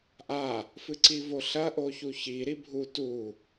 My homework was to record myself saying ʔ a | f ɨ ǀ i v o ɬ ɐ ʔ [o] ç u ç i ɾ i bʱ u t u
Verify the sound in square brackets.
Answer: correct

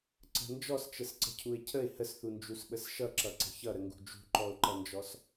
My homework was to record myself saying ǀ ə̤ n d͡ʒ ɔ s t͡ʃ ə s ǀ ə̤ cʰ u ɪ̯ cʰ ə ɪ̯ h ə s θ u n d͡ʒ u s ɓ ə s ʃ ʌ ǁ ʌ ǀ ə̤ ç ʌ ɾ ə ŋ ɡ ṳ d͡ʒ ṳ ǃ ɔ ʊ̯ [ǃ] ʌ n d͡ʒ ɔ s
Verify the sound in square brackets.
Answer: correct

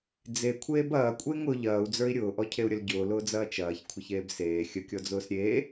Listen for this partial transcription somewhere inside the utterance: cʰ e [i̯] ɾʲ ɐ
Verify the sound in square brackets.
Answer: incorrect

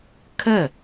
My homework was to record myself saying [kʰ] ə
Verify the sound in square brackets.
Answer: correct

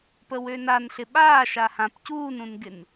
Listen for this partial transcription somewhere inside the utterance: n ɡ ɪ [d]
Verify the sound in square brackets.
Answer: incorrect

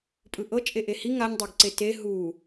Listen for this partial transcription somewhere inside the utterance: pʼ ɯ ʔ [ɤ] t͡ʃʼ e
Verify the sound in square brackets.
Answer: correct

